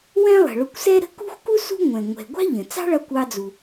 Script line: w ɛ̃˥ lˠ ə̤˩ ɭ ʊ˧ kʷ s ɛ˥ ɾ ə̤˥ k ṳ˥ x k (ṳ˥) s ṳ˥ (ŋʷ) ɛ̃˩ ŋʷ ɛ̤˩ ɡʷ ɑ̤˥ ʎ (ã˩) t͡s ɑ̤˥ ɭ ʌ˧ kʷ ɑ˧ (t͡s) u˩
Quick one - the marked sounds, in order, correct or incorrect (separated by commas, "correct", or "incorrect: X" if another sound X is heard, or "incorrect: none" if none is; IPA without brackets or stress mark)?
incorrect: u˥, correct, incorrect: ə̃˩, incorrect: d͡z